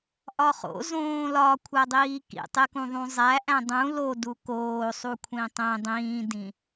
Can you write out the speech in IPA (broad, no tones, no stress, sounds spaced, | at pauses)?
ʔ ɒ χ o̰ z õː l ɒ kʷʰ æ dˤ iː k ḭ tˤ e k ũ ðˤ ũ zˤ æ ʔ æ̃ dˤ ũ l o d u k oː sˤ u kʷʰ ĩ tˤ ẽ dˤ ĩː d ĩ